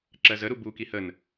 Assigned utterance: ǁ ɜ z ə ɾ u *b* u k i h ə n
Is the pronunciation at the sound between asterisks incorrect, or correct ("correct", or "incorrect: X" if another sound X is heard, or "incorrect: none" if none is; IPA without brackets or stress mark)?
correct